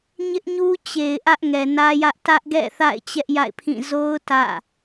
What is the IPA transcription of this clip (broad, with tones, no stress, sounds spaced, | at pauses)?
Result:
ɲ ɪ˦ ʔ ɲ u˦ t͡ɕ e˨ ɪ̯ ʔ ä˦ ʔ ŋ ɛ˨ n ä˦ j ä˦ ʔ t ä˦ ʔ ɡ ɛ̰˦˨ θ a̰˦˨ ɪ̯ t͡ɕ ɛ˦ ʔ j a̰˦˨ ɪ̯ pʰ ĩ˦˨ z o˦ ʊ̯ t ä̰˦˨